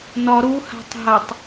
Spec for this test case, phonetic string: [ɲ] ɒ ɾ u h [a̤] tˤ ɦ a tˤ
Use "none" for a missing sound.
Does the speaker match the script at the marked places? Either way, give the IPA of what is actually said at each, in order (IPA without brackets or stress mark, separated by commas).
n, a̤